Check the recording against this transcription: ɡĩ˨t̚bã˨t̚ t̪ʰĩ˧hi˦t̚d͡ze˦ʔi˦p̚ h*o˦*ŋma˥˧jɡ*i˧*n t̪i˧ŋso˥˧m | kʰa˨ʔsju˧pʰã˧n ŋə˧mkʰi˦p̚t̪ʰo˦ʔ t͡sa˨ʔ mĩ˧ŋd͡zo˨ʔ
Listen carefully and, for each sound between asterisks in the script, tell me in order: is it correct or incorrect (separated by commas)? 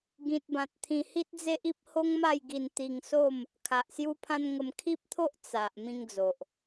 correct, correct